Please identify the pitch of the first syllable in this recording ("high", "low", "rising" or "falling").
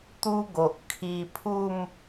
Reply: high